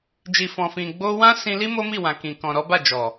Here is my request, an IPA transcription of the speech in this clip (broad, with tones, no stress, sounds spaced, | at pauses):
d͡ʒ i˨ f ɔ̃˨ f ĩ˨ ɡ͡b o˧ w ã˦ s ĩ˧ l i˦ m o˦ m i˦˨ w ã˨ k ĩ˨ k ɔ̃˨ ɾ ɔ˨˦ b a˦˨ d͡ʒ ɔ˨